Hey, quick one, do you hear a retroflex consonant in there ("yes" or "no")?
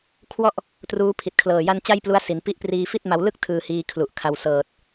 no